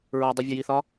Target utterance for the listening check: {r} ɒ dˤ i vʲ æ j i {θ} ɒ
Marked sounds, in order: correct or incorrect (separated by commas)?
incorrect, correct